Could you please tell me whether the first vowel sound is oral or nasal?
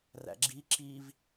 oral